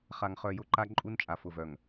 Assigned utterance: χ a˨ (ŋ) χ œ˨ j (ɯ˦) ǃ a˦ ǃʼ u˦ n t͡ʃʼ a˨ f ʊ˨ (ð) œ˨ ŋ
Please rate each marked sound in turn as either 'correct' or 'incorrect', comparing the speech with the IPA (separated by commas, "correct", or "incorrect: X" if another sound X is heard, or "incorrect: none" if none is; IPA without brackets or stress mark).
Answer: correct, incorrect: ʊ˦, incorrect: v